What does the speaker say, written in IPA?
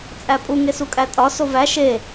t͡sʼ æ pʼ u ŋ e s u kʼ æ tʼ ɒ s o v æ ʃ e

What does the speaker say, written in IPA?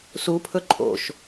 s u pʰ ɵ ǃʼ o̰ ʃ

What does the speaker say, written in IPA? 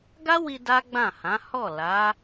ɡ a˦ w i˧ d a˦ ɡ͡b ã˦˨ h ã˨˦ h ɔ˦˨ l a˨˦

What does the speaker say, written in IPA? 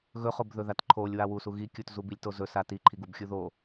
ɣ ɵ χ o b ð ɵ ð a t ǃʰ o lʲ w a w u s u ɣ i kʲ u t z u b i lʲ t o z ɵ s a t i ǃʰ i ɡ u b xʲ u ð o

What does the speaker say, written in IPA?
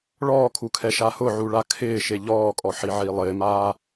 ɭ ɔː kʰ u kʰ ɛ ʃ a h ʊ ʕ u ɭ a kʰ ɪː ʃ e ʎ ɔː kʼ ɔ ħ i ʕ i lˠ ɪː m aː

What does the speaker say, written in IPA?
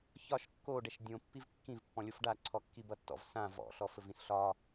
ç ɒ ʃ kː o ɖ ɛ ʃ dʲ õ pː i v kː ĩ v pː ɔ̃ lʲ o f ɖ a ǀʰ ɔ kː i b ʌ tː ɔ̰ v s ã v ɔ̰ ɬ ɔ f ɵ v ĩ s ɬ ɒ

